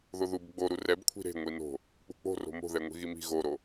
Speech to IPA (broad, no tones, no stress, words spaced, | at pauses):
ðoðub ɡ͡boɾu rɛbkʷʰi̤ ɾe̤ ŋʷino̤ | k͡pṳk͡po̤ro̤ mo̤ðɛ ŋʷi̤ɣimi̤ ɣoɾo